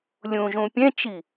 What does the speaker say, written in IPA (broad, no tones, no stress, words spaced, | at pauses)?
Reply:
lʲũʒũ pʲɛ̃t͡ʃi